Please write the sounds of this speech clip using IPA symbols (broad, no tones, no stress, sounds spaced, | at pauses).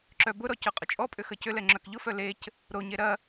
ǁ œ b ʊ ɾ ɔ c œ qʼ ʊ t͡ʃʼ ɔ pʼ ʏ x ə c ʏ l ɛ ŋ͡ǁ œ k ʎ ʊ f œ l e c | ɾ o ɲ e ɾ ɐ